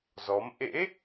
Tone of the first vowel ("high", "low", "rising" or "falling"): rising